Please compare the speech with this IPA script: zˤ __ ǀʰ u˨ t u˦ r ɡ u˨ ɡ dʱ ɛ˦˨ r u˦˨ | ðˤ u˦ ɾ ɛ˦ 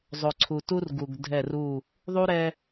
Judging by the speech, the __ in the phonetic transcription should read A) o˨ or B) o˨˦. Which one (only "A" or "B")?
A